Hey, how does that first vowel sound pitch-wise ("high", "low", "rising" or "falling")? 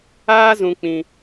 high